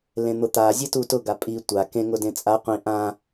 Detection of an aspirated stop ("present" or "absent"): absent